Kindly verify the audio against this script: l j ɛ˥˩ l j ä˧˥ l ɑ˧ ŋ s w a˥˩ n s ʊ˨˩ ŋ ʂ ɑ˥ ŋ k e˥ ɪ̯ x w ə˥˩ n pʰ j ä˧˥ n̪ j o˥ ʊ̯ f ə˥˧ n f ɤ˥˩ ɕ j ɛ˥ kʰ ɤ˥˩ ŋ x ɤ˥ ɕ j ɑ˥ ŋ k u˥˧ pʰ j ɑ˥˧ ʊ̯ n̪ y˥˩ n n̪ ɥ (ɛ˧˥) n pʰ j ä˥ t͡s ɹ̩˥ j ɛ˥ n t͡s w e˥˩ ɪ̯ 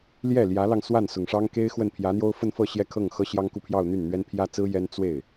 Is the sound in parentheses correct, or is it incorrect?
incorrect